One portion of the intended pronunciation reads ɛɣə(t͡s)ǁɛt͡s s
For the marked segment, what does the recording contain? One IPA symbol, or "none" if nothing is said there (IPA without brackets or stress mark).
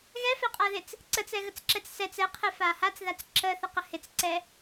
t͡s